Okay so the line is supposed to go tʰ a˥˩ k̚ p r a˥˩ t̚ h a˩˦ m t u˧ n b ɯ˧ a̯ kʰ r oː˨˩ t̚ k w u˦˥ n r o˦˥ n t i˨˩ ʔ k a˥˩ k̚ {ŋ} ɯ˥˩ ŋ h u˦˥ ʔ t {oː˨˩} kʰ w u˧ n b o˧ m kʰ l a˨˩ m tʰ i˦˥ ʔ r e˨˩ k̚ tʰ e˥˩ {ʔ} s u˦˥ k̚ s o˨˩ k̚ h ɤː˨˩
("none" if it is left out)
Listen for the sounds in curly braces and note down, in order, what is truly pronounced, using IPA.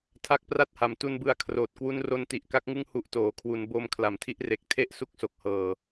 ŋ, oː˩˦, ʔ

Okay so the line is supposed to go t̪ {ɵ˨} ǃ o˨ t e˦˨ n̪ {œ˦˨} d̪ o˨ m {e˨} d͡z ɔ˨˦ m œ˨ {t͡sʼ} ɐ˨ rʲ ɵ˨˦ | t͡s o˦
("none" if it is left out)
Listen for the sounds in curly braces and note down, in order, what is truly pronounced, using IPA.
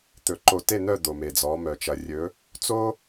ɵ˨, œ˦˨, e˨, t͡ʃ

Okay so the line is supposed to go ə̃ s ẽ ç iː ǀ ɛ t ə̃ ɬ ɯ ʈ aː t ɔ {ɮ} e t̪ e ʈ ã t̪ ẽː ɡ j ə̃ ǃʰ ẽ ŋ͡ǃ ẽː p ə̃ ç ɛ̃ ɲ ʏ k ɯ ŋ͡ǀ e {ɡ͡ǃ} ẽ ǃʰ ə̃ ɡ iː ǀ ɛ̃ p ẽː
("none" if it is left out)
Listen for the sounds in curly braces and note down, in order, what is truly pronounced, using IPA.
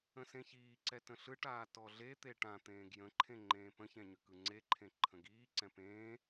ɮ, ǃʰ

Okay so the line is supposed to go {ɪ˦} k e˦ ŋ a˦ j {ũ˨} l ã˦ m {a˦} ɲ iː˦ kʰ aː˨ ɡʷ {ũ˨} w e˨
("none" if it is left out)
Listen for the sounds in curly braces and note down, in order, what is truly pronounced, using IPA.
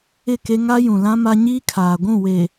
ɪ˦˨, ũ˨, a˦, ũ˦˨

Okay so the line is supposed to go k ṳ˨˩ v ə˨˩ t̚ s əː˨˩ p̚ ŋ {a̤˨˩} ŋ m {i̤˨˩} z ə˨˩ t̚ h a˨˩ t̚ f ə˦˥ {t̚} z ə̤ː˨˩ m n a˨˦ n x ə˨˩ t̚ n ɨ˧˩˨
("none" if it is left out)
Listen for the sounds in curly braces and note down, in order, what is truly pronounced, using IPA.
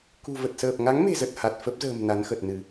a˨˦, e̤˨˩, p̚

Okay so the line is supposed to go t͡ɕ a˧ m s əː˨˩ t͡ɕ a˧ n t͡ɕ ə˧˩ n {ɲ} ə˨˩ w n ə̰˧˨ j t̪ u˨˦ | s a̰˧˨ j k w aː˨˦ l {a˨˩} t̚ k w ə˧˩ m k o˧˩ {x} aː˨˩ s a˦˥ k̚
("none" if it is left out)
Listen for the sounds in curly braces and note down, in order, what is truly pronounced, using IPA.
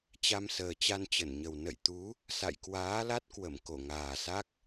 ɲ, a˦˥, ŋ

